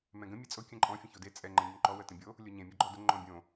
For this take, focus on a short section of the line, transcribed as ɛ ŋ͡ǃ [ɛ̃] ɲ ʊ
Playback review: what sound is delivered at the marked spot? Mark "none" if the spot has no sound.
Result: ɛ̃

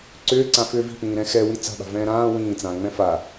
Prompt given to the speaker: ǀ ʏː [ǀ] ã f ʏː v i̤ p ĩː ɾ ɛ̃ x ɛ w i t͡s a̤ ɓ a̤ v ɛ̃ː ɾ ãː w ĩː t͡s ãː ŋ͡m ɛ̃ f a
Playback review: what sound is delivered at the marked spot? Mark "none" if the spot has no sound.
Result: ǀ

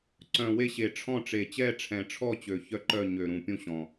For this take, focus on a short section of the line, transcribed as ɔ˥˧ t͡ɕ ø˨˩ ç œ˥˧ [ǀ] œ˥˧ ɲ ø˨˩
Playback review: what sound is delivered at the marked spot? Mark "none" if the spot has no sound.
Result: ǃ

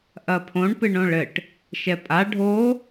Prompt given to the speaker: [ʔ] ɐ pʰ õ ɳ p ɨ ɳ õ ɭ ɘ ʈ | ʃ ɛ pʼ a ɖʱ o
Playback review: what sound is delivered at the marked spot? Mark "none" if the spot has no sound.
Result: ʔ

